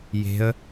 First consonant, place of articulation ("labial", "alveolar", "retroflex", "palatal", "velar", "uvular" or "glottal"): palatal